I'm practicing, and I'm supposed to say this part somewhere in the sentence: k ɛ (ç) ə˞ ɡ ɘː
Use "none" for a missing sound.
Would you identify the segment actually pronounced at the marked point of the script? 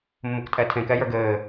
j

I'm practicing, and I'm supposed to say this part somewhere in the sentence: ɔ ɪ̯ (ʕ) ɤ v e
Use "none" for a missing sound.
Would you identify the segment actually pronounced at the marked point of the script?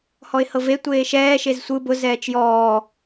h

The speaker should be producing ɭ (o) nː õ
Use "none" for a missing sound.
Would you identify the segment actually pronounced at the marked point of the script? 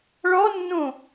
ɔ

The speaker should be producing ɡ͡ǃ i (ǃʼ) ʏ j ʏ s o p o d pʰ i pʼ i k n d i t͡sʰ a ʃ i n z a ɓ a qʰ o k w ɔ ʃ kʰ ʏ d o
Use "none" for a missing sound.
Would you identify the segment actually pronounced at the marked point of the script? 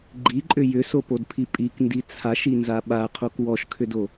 ǃʼ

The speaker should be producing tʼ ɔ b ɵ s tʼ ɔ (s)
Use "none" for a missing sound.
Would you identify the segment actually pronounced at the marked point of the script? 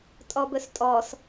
s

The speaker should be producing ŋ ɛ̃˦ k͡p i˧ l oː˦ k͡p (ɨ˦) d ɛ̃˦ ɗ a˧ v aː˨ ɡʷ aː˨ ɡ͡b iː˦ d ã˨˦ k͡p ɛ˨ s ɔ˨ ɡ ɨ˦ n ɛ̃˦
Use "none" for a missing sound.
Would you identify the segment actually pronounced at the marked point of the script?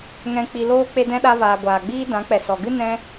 e˦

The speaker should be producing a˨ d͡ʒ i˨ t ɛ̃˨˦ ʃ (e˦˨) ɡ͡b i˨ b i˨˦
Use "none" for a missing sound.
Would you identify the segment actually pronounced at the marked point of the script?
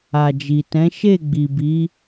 e˦˨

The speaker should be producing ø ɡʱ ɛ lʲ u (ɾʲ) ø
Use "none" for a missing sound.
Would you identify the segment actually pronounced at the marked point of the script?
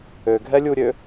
ɾʲ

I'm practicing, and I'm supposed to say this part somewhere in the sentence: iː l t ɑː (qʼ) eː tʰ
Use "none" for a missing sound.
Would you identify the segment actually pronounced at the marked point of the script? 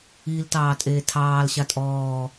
tʼ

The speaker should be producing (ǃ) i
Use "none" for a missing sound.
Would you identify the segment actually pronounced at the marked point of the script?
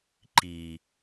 ǃ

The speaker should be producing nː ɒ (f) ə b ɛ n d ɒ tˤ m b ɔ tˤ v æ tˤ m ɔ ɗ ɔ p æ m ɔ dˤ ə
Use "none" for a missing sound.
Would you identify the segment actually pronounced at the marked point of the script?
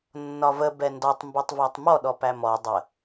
v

